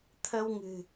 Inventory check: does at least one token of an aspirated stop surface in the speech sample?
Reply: yes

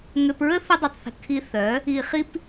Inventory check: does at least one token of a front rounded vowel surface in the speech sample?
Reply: yes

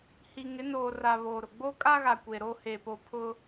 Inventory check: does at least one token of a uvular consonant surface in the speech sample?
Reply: no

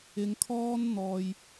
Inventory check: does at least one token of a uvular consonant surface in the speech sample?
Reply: no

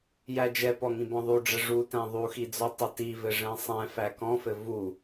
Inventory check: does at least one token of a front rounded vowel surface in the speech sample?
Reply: no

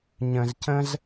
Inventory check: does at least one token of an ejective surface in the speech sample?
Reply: no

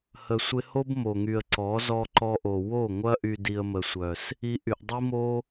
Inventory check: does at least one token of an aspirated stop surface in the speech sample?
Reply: no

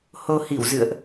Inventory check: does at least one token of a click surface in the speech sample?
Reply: no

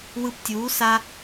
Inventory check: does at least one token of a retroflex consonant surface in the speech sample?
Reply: no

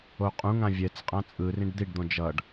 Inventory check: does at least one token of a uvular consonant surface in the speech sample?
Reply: yes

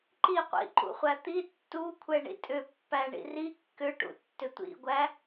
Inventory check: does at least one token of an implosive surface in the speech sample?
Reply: no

